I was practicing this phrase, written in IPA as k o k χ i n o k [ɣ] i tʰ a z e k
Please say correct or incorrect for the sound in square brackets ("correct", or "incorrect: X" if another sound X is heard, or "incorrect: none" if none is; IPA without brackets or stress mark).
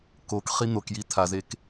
incorrect: j